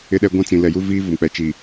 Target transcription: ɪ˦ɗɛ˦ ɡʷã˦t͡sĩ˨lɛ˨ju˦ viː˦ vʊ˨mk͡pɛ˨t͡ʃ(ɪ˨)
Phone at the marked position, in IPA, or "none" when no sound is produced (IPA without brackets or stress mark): i˨